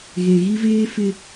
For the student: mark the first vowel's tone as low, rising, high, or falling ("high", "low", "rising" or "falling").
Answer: low